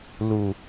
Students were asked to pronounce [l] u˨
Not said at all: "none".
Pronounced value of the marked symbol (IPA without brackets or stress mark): l